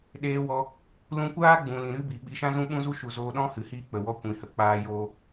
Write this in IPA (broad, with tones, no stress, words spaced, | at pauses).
ɗeː˧wɔ˧ | lũ˧kʷaː˦ ɡ͡bũ˨ lĩ˨ ɾɨ˦bi˨ɓi˧ ʃã˦zũ˦ɓũ˦zu˦ ʃu˨zoː˧ ɗɔ̃˦hɨ˨hiː˧ k͡pə˨ wɔ˧ kʷĩ˨hə˨˦ k͡paː˦joː˦